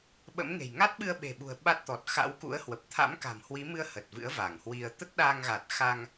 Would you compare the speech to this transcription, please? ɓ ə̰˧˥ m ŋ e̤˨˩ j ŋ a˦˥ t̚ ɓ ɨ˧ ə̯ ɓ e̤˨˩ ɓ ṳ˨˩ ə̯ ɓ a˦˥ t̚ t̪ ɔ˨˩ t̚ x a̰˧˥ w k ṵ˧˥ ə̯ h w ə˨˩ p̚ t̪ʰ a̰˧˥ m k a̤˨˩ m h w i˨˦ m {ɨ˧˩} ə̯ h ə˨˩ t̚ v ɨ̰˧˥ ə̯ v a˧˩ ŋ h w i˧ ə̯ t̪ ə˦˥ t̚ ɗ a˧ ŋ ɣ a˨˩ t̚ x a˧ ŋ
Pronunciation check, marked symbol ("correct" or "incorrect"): incorrect